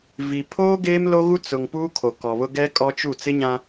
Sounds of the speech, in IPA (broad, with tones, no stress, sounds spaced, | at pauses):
v i˨ pʰ oː˦ ɡ eː˦ m l o˦ ɣ u˦ t͡s ʊ˨ ŋ p uː˦ kʰ o˨ k ɔ˨ β ʊ˦ ɡ ɛ˦ kʼ ɔ˦ t͡ʃ u˦˨ t͡s ɪ˦ ɲ ã˦